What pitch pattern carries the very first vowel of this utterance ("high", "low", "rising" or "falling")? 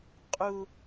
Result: high